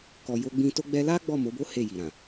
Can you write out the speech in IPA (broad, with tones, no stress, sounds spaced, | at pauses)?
k ɔ˨ j o˧ ɡ͡b ĩ˧ t o˧ ɡ͡b ɛ˧ l a˦ ɡ͡b ɔ˦˨ m o˨˦ b o˦ h e˦˨ j i˨ ɾ ã˨